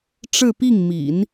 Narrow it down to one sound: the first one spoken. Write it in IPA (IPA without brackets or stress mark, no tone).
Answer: ʈ͡ʂ